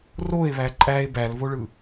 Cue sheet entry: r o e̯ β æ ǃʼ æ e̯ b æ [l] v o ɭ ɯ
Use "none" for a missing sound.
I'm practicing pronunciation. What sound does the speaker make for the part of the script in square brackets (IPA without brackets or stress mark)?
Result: l